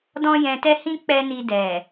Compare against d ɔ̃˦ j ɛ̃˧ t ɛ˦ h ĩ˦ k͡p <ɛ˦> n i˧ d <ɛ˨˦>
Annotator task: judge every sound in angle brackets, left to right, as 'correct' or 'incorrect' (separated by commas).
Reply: correct, incorrect